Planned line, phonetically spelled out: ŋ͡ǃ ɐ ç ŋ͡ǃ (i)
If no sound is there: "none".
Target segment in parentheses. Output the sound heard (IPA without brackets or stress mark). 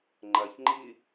i